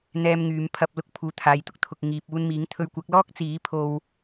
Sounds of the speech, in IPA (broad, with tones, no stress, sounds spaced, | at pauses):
n̪ ɛː˧ m ŋ yː˨˧ m pʰ ɐ˧ p̚ l ʊ˧ k̚ pʰ uː˨ t̪ʰ aː˨ j t̪ ʊ˥ k̚ t̪ʰ ʊ˨ k̚ ŋ iː˨ p̚ uː˧ n m iː˨˥ ŋ t̪ʰ ɵ˧ ɥ kʷ ɐ˨˥ k̚ l ɔː˥ k̚ t͡s iː˨˥ pʰ o˧ w